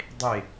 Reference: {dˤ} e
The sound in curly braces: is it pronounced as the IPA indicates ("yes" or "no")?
yes